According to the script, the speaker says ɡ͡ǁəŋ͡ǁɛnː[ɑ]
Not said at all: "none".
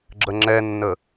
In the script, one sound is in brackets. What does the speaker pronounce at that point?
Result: ə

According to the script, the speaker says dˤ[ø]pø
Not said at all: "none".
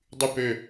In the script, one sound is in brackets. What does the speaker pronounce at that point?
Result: y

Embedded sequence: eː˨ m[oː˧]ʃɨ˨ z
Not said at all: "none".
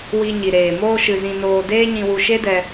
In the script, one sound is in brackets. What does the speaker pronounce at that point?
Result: oː˧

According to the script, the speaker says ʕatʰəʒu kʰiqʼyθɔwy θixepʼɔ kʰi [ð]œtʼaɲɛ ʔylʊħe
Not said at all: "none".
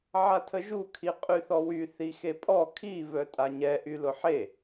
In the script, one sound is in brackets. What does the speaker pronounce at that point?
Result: v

